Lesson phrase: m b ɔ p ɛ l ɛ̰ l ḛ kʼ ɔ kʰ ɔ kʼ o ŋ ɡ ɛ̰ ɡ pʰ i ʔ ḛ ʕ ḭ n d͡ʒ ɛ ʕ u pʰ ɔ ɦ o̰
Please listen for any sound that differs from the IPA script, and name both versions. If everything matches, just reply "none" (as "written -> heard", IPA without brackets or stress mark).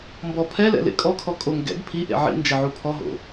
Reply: p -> pʰ